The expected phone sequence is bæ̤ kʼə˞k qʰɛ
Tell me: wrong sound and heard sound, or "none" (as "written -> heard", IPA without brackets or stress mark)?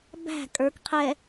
none